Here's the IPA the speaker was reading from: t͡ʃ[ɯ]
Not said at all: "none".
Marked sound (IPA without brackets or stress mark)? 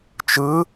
ɯ